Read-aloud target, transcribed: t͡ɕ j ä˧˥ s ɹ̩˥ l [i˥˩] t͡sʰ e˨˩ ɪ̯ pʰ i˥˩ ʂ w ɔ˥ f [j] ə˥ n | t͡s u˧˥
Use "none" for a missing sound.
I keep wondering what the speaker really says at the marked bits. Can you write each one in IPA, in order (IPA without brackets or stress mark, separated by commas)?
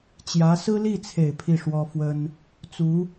i˥˩, w